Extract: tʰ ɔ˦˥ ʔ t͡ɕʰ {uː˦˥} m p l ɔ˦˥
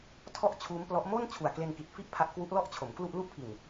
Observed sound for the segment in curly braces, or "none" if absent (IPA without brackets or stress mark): uː˦˥